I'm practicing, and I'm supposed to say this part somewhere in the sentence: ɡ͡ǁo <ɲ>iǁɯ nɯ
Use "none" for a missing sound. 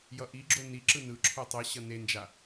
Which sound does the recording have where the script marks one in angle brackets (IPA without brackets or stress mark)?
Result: n